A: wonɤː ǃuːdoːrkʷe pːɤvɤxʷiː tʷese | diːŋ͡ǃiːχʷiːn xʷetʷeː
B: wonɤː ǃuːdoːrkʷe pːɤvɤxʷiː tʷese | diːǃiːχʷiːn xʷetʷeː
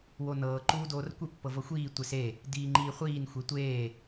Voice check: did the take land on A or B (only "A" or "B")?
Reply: A